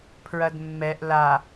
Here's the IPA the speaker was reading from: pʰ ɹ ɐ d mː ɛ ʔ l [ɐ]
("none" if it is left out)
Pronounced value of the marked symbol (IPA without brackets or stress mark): a